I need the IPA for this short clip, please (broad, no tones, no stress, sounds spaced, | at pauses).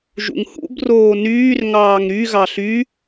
ʒ ṵ ŋ h ṵ b r oː n yː r ŋ ɑː ŋ ɾ y ɣ ɑ ɬ y